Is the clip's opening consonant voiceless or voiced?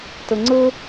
voiceless